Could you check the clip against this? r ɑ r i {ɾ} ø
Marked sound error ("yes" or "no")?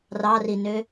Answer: yes